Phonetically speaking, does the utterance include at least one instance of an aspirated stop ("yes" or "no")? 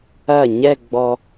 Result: no